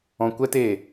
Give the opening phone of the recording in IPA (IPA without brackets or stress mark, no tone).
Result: ɔ̃